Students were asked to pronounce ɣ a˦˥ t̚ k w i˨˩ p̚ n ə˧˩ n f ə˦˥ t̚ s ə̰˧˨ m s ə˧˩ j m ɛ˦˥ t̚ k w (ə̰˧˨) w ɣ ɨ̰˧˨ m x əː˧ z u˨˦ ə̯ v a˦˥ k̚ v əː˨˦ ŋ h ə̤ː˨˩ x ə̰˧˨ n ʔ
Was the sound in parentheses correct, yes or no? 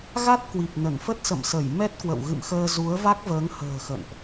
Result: yes